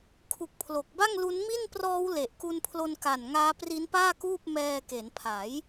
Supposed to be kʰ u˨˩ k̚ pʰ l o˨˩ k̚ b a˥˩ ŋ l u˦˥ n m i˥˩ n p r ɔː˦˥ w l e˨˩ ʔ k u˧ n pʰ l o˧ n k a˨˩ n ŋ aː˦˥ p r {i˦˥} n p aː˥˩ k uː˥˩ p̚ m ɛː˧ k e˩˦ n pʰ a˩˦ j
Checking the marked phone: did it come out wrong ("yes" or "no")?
no